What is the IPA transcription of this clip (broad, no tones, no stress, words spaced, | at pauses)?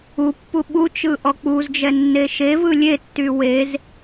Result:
upːu ɓut͡ʃɯ ʔɔk͡puzd͡ʒɛ nːeʃevɯ lʲetːy wez